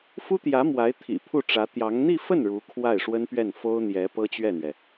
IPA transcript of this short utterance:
f u˥ t̪ j ä˧˥ m w a˧˥ ɪ̯ t̪ʰ ḭ˨˩ pʰ u˥˩ ʈ͡ʂ ä˧˥ t̪ j ɑ˧˥ ŋ n̪ i˥˧ f ə˥˩ n ɻ u˧˥ kʰ w a˥˩ ɪ̯ ʂ w ə˥ n p ɥ ɛ˥˩ n f o˥ ʊ̯ n̪ j ɛ˧˥ p ɤ˥ t͡ɕ ɥ ɛ˥˩ n̪ ɥ ɛ˩

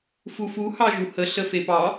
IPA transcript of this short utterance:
f u f u h ɑ ʒ u h ə ɬ ə f e p ɑ

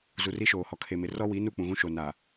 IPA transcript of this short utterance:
z u˨ r i˦ ʃ oː˨ h ɔ˨ kʰ e˨ m ɪ˨ r ɔ˦ w i˨˦ n u˦˨ k͡p ũ˨ ɣ ũ˦ ʃ o˨ n aː˨

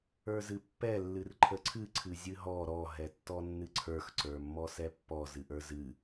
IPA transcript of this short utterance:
ə˞ z ɨ pː ɛ lː ɨ r ǃʰ ə ǀʰ ɨ ǀʰ ɨ zʲ ɨ ɦ ɔ ɾ ɔ ɦ ɛ tː ɔ nː ɨ ǀʰ ə˞ x ǀ ə˞ mː ɔ s ɛ pː ɔ z ɨ ʔ ə˞ z ɨ

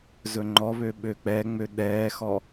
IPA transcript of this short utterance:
z ɵ ŋ͡ǃ ɔ β ø ɓ ø k͡p ɛ ŋ͡m ø ɗ ɛː x ɔ

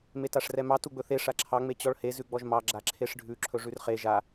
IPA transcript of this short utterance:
m e t a ʂ r ɛ m ɑ t u ɡ͡b ɵ θ e ʂ a ǁʰ ɑ ŋ͡m e t͡ɕ ɔ ɭ h e z ʉ ɡ͡b ɔ ʒ m ɑ ɡ͡ǁ a ǁʰ e ʂ ɖʱ ʉ ǁʰ ɵ ʐ ʉ r χ e ʒ a

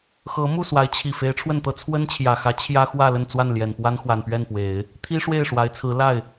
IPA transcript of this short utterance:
x ɤ˧˥ m u˥˩ s w a˧˥ ɪ̯ t͡ɕʰ i˨˩ f e˧˥ ɪ̯ ʈ͡ʂʰ w ə˥˩ n t̪ ɤ˥ t͡sʰ w ə˥ n t͡ɕʰ j ä˨˩ x ä˧˥ t͡ɕʰ j ä˥ x w ä˥˧ l ə˥˧ n t͡s w a˥˩ n l j ɛ˨˩ n p w a˥ n x w a˨˩ n p ɥ ɛ˥˩ n p w e˨˩˦ ɪ̯ | t̪ʰ i˥ ʂ w e˥˩ ɪ̯ ʂ w a˧˥ ɪ̯ t͡sʰ ɹ̩˧˥ l a˥˩ ɪ̯

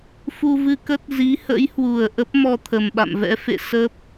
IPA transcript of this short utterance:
f u˧ v ɨ˧ k ə˦˥ t̚ z i˨˦ h ə̰˧˥ j h w u˨˩ ə̯ ʔ ə˦˥ p̚ m ɔ˧ t̪ʰ ə˨˩ m ɓ a̰˧˨ m v ɛ̰˧˥ f ḛ˧˨ s ə˦˥ p̚

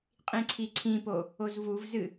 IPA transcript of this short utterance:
qʼ ĩ ǀʰ i ǀʰ ĩ p o | o z v u v z ɨ

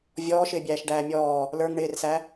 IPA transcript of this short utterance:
vʲ ɔː ʃ ɪː bʲ æː ʃ ɖ æː mʲ ɔː | l ə˞ ŋ ɳ ɪː r s æ

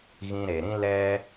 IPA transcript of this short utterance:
ɣ ĩ˧ ɾ e˨ ɾ ĩ˦ l ɛ˦

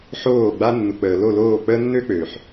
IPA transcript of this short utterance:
ħ oː˦˨ ɡ͡b a˦ nː u˨ k͡p əː˨ l o˦˨ l oː˦˨ k͡p əː˦ nː ø˦ k͡p ø˨ ħ

